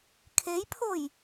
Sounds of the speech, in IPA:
kʰ e j pʰ o j

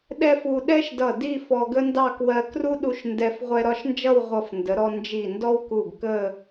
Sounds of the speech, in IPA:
ɗ ɛ˥ f u˧ ɗ ɛ˥ ʃ d ʌ˧˩ d i˥˧ f ɔ˧ ɡ ə˥ n d ɑ˥˧ k w ɜ˧ k r u˥ ɗ u˧ ʃ n d ɛ˧ f ʁʷ ɛ˧ ɾ ɒ˥˧ ʃ n d͡ʒ ʌ˥˧ w ʁʷ ʌ˧˩ f n d ə˩˧ ɾ ɔ˧ n d͡ʒ i˧˩ n d ɔ˥ w k u˧˩ ɡ k ə˥˧

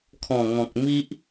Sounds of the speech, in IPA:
kʰ ɔ̃˨˩ ŋ ɔ̃˨ k̚ m i˦ ʔ

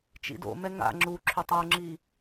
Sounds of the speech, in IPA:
t͡ʃ ḭ d o̰ m ɛ ŋ a̰ ŋ͡ǁ u ǁʰ ʏ tˤ ɤ ŋ͡ǁ i

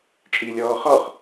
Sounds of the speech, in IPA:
t͡ʃʼ iː lʲ ɔː χ ɔ χ

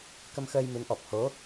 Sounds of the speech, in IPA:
k ə˧ m x əː˧ j m ɨ˨˦ n ʔ ɔ˨˩ p̚ h o˨˦

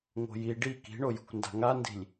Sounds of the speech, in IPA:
ŋ o̤ j i ɖ i k i̤ ɳ o j ṳ kʷ n d a̤ ŋ a n d i̤ lʲ

